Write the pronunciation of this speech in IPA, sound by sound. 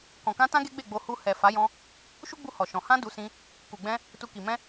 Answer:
kɔ̃˨kã˧tã˦ ɡe˦ɡ͡be˦˨ɡ͡bo˧ hu˧ hɛ˨ fa˨˦jɔ̃˧ | ʃu˦ɡ͡bu˧ hɔ˨ʃɔ̃˨ hã˧ du˧sĩ˧ | ku˨ɡ͡bɛ̃˧ | tu˧ki˨ mɛ̃˧

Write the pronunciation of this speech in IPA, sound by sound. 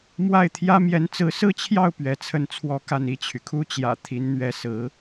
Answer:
mwa˥˩ɪ̯t̪ʰjä˥ mjɛ˧˥nt͡sɹ̩˧˥sɹ̩˥˧t͡ɕʰjɑ˥˩ʊ̯ pɥɛ˧˥t͡sʰə˥˩nt͡sʰwɔ˥ka˥˧n i˥˩t͡ɕʰy˩kʰu˥ t͡ɕjä̰˨˩ t̪ʰi˧˥nn̪ɥɛ˧˥sɹ̩˧˥

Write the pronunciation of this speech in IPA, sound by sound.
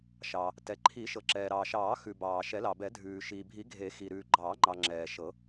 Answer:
ʃɑ˩ | tɛ˩ǃʰi˨˩˦ʃɤ˩ǁɛː˩ ɾɑː˩ʃɑː˨˩˦ xʉ˩ bɑː˩ʃɛ˨˩˦lɑ˩bɛ˨˩˦ dʱʉː˩ʃiː˩bʱi˨˩˦ ɡʱe˨˩˦xi˩ ɾʉː˩ɡ͡ǃɑː˨˩˦ŋ͡ǃɑ˩ ŋ͡ǁɛː˩ʃɤ˨˩˦

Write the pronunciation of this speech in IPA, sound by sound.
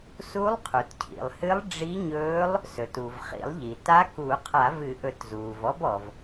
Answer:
su˧˥lˠqʰu˩tcʰḭ˩lˠhɨ˧˥lˠ ɖ͡ʐi˧˥ɲɵː˧˥lˠ | sɵ˩tu˩v χḭ˨˩˦lˠʎi˩ ta˧˥ku˨˩˦qʰa˨˩˦v ɨ˨˩˦ʔɵ˨˩˦tzuː˩v ɔ˧˥bɔ˩v

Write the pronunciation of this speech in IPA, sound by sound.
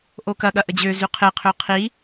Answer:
ʔokɐ ɠɐʔəd͡ʑø zyqʰɪ qʰøqʰi

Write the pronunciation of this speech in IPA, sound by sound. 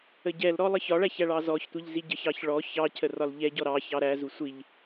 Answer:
əɟɛlɾɔ lˠəçɒɭæç æɭɑzɔçtʷiʎ ziɟəçɑç ɭɔ çɑcʰə rɒlʎɛɟɔ ɾɑ çɑɾæzu sʷiʎ

